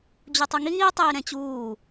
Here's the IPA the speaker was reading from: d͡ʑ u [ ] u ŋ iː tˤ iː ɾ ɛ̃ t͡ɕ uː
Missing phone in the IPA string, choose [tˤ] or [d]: tˤ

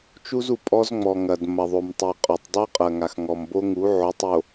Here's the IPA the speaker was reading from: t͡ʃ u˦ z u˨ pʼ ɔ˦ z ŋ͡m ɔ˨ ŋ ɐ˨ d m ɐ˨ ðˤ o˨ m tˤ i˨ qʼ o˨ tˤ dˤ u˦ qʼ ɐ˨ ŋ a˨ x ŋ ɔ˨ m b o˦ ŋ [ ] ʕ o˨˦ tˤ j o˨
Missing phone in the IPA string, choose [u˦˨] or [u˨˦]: u˨˦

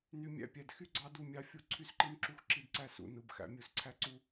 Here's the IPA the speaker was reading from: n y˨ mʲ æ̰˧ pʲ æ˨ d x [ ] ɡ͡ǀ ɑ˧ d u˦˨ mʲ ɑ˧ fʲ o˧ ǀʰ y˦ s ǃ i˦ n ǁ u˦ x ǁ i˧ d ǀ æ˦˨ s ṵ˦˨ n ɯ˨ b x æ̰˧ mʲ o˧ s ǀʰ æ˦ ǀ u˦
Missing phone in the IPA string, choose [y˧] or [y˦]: y˦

